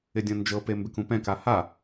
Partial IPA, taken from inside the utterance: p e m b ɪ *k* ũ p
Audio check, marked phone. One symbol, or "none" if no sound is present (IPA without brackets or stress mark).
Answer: k